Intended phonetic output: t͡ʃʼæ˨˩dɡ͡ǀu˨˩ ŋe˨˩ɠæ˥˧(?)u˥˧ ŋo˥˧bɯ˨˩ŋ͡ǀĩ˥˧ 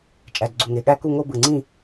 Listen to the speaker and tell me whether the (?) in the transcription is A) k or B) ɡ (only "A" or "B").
A